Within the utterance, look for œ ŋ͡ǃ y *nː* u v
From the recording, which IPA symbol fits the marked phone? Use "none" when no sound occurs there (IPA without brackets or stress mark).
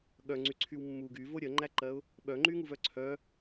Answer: ŋ